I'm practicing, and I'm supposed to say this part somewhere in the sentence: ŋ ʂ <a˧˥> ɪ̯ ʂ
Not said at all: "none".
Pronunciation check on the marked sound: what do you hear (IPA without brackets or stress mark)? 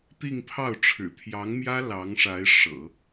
a˧˥